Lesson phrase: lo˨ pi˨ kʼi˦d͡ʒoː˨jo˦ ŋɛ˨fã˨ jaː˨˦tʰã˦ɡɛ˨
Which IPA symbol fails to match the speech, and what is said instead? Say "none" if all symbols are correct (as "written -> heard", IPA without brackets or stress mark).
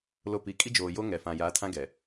none